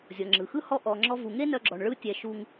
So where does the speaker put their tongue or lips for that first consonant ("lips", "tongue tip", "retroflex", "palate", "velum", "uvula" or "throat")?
tongue tip